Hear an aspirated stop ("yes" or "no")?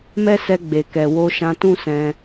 no